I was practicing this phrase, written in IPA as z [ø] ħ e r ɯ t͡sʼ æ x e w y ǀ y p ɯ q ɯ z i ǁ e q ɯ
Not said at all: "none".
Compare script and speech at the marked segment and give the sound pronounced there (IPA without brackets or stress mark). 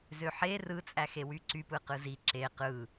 ø